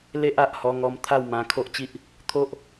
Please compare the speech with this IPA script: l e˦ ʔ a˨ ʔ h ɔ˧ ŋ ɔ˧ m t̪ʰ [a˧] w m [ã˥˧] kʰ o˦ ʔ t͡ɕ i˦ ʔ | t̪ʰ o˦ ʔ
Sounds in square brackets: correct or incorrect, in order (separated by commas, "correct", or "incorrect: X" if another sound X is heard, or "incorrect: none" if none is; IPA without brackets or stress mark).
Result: incorrect: a˥˧, incorrect: ã˧